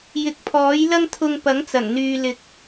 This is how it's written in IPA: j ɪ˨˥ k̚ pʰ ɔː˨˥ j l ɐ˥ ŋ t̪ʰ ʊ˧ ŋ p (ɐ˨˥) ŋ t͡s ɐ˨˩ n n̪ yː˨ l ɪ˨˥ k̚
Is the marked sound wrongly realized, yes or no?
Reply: no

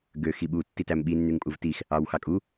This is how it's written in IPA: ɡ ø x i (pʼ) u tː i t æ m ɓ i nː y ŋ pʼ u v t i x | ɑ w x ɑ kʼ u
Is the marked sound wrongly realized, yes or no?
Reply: yes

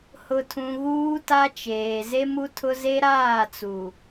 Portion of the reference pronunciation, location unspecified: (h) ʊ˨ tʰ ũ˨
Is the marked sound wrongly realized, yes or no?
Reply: no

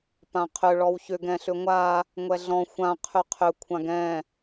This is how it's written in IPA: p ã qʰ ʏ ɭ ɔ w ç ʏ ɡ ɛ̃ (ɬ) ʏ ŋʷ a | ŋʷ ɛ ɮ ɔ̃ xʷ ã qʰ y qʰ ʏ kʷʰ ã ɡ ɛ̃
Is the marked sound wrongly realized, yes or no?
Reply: no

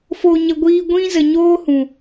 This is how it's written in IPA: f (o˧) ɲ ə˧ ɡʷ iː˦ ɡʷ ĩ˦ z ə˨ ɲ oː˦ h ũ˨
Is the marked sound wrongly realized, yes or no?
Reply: no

